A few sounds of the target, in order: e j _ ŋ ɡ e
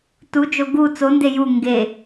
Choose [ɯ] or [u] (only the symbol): u